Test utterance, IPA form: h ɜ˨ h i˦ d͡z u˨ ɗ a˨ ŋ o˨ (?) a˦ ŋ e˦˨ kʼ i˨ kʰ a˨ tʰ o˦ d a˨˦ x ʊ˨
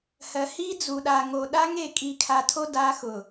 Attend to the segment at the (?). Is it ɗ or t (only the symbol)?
ɗ